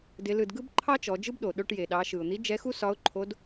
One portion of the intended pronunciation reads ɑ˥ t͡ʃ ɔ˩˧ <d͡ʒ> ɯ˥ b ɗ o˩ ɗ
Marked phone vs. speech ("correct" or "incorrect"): correct